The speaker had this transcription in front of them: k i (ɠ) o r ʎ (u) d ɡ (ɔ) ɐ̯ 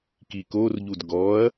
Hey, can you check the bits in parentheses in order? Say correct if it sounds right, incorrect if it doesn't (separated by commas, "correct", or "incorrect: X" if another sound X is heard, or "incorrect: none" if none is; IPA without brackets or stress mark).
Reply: incorrect: k, correct, correct